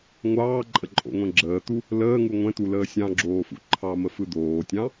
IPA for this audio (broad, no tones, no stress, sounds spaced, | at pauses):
ŋʷ ɑː ǃʼ ə ǃʼ o̰ ŋʷ ɛ̃ ɡ͡ǁ əː t̪ u | l əː ŋ u ŋʷ ɛ̃ t̪ u l əː sʲ ɑ̃ ɡ͡ǁ oː f ṵ ǃʰ ɑ m ə f ɯ d̪ oː tʲ ɑ̃